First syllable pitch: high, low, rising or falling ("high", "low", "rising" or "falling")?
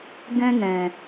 high